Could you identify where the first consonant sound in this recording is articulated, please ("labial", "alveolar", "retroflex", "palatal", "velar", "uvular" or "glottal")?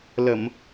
alveolar